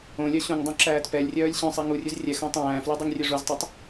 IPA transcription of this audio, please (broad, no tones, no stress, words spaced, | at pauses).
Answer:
õlʲœ ɕũŋdˤũ ǁæːtpɛlʲrʲœːlʲ ɕœ̃sˤi ŋurʲʉz rʲɛxõ tˤæ̃ːfly dˤøŋrʲøʐuztˤøtˤ